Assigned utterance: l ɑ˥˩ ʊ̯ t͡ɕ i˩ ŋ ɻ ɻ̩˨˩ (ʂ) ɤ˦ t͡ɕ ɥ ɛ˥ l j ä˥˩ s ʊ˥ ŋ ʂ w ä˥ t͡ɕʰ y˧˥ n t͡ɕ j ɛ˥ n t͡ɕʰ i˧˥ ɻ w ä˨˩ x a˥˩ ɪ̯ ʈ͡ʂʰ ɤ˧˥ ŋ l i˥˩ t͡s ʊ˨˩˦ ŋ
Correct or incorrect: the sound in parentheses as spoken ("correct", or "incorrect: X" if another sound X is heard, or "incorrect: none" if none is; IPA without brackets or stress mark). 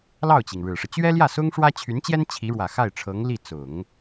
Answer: correct